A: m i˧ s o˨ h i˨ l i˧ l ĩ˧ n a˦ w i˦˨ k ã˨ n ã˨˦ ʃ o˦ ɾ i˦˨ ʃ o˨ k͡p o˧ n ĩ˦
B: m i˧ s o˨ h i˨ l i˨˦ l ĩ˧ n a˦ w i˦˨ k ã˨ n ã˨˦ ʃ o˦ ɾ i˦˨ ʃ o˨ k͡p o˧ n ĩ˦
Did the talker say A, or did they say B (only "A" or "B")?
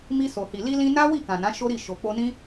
A